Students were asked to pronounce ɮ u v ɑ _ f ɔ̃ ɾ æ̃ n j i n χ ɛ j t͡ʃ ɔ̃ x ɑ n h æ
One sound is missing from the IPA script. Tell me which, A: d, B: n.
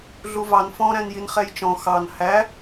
B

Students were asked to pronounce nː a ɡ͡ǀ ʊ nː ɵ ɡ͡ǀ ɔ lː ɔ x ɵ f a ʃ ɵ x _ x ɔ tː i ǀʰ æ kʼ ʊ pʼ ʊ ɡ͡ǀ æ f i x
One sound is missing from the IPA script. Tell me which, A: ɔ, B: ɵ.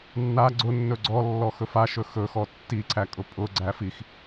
B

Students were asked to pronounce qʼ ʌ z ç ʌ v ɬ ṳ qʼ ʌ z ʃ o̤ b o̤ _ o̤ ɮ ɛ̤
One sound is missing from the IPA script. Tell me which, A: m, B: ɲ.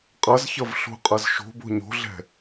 B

